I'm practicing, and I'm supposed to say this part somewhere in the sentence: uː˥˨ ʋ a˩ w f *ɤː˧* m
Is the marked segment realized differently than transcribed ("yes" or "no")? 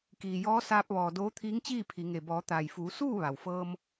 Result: no